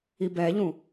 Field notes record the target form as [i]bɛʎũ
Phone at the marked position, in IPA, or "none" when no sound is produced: i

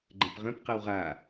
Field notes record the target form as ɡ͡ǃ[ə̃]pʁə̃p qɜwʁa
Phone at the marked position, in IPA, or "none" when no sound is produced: ə̃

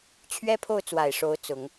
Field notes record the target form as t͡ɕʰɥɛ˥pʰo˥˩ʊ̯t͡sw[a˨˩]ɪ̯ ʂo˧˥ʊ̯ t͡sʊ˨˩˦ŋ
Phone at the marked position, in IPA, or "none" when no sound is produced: a˨˩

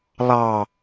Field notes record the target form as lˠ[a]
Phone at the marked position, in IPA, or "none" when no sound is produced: ɑ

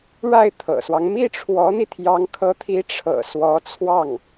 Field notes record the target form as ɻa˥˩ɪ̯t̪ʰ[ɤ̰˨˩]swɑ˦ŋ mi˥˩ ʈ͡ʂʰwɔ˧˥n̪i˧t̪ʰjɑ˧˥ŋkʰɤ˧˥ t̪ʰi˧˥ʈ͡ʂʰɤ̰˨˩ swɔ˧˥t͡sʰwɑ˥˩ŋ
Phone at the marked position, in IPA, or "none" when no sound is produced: ɤ̰˨˩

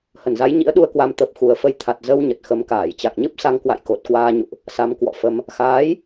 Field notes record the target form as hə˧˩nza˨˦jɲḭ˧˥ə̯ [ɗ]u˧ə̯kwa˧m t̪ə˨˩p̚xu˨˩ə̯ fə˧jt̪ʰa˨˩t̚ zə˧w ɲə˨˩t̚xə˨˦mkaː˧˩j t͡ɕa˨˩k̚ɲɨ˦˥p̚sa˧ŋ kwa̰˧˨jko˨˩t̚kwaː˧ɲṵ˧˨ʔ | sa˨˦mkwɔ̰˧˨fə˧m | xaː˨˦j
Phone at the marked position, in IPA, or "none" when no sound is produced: ɗ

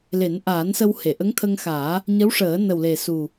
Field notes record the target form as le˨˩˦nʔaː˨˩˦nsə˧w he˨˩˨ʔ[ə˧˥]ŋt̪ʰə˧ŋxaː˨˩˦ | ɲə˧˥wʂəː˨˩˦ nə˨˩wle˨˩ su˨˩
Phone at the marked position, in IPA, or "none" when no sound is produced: ə˧˥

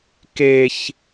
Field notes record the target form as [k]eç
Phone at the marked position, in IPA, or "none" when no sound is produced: k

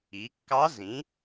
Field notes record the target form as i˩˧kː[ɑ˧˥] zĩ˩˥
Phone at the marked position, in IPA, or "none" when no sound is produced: ɑ˧˥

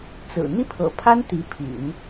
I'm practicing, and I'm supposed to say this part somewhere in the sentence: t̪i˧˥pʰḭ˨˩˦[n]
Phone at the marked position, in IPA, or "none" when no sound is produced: n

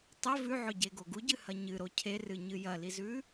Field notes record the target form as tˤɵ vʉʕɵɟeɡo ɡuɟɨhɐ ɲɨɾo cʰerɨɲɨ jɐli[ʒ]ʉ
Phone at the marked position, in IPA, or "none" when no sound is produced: z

